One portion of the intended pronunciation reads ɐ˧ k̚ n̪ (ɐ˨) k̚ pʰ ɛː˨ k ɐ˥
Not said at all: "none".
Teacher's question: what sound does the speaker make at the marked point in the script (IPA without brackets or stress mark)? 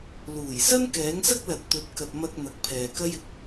ɐ˨